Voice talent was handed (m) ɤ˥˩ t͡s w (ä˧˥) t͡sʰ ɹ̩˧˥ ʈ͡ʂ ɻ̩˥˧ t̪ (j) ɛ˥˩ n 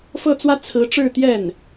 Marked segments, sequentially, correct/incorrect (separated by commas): incorrect, incorrect, correct